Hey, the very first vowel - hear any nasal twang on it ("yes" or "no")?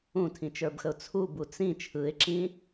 yes